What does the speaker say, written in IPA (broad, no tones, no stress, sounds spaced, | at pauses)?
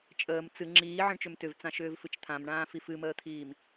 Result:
t͡ʃʼ əː m t͡s ɨ ŋ͡ǁ iː ʕ ə̃ ɳ t͡ʃ ʏ m t ʏ v t͡s ã ʃ ʏː v f ɨ t͡ʃ t̪ʰ ã m ɳ ãː f i f ɨ m əː t̪ʰ iː m